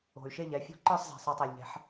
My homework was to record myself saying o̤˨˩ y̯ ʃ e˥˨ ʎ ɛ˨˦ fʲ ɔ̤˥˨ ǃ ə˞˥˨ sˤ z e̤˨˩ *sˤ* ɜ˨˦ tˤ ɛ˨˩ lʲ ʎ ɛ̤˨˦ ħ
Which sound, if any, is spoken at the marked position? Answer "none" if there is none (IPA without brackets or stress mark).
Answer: sˤ